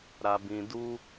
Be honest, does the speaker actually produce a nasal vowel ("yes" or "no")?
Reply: yes